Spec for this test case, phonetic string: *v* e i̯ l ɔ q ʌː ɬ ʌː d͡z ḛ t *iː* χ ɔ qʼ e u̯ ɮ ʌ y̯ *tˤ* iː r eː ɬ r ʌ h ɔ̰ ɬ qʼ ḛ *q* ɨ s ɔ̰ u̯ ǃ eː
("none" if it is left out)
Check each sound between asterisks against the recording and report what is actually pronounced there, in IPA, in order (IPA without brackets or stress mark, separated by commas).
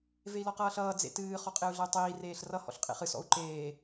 v, ɨː, tˤ, χ